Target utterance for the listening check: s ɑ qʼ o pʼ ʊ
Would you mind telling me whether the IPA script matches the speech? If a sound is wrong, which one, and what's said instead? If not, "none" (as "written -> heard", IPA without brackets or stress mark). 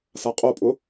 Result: ɑ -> a